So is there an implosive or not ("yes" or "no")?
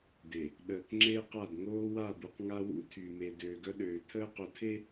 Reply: yes